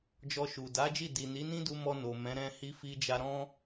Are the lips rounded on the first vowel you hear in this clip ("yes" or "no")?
yes